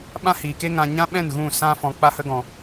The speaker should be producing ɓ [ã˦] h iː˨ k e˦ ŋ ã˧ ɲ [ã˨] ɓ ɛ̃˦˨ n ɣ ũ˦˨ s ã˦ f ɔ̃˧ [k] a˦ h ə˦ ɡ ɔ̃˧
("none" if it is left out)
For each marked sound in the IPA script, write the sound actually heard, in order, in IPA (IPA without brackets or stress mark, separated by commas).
ã˦, ã˦, k͡p